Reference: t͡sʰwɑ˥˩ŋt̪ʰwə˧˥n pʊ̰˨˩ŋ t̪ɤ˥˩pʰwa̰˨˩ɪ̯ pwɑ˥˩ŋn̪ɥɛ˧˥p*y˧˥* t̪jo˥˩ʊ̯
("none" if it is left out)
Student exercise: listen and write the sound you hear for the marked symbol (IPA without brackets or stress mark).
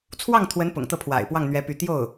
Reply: y˧˥